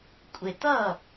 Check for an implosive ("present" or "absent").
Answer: absent